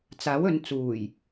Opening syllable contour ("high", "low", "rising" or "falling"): rising